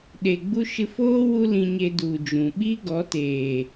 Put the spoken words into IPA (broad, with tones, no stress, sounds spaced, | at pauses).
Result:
ɗ e˨ ɡ͡b u˧ ʃ ɨ˧ f oː˦ w u˦ l ĩ˧ ɲ e˧ d u˨ d͡ʒ ũ˨ ɓ i˦ ɡ ɔ˨˦ t eː˨